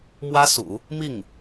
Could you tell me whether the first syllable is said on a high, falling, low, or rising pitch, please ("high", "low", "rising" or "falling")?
high